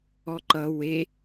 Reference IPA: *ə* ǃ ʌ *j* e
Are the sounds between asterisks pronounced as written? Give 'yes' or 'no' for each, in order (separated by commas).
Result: no, no